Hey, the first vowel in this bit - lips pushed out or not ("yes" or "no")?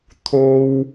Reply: yes